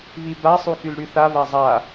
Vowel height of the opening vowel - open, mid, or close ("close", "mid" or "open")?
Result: close